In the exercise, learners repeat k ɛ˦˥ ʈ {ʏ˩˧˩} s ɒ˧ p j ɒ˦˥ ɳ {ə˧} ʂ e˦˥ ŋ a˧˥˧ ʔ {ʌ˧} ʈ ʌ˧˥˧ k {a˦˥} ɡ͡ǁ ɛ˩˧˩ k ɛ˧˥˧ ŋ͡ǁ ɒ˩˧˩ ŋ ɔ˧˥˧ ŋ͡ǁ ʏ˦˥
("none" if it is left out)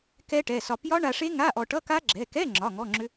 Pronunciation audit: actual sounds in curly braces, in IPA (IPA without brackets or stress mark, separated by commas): ɛ˩˧˩, a˧, ɔ˧, a˦˥